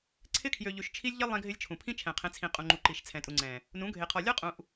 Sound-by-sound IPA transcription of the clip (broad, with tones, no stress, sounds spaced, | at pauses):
ǀʰ ɪ˦ kʰ j ø˨ ʎ ʉ˨ ʃ t͡ʃʰ i˦ lʲ ʎ ɪ˦ lˠ ẽ˦ ɡʱ ɪ˦ lʲ t͡ʃʰ ũ˨ pʰ ĩ˦ t͡ʃʰ ɛ̃˨ qʰ ẽ˨˦ t͡sʰ ĩ˨ qʼ ũ˨ ŋ͡ǃ u˨ ǃ i˨ ʃ t͡sʰ ɛ̃˨ tʼ u˨ ŋ͡ǀ ɛ̃˨ | n ũ˨˦ ɡʱ e˨ qʰ ɔ˨ lʲ ɔ˦ qʼ ũ˨ ʔ